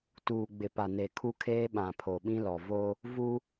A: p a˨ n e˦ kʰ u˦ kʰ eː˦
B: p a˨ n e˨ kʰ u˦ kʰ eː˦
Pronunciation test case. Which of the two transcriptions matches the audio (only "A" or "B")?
B